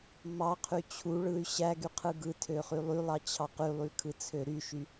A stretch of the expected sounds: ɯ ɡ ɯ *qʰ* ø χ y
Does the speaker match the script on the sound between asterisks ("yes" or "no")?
no